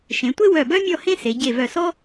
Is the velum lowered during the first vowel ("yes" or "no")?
yes